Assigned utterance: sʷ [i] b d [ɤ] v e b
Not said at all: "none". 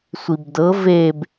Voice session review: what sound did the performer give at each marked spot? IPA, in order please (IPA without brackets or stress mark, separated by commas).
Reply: i, ɤ